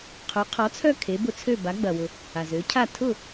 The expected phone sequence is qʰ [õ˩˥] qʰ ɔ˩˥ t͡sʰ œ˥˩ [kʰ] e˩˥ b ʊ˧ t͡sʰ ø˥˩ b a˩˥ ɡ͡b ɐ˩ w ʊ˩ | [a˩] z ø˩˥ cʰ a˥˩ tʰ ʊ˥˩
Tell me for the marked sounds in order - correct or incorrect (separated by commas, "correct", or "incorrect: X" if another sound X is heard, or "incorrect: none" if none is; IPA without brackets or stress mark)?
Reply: incorrect: o˩˥, correct, correct